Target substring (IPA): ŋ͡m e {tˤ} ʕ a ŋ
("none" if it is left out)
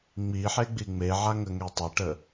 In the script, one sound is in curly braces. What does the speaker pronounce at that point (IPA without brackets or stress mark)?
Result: none